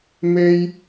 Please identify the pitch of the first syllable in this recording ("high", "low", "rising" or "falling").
high